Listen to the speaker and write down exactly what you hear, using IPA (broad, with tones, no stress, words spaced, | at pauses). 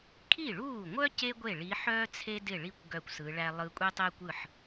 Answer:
kʰi˥˩ɭuː˥˩ŋʷœ˥ ce˥ɡʷe˥˩ ɭi˧˥ħœː˥ t͡sʰe˥dɪ˥˩ɭi˥˩kʷ ɡœ˥˩kʷsɯ˧˥ɭæ˥ lˠɯ˧˥kʷʼe˥tˤe˥kʷɯ˥˩ħ